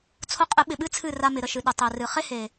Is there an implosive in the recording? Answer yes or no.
yes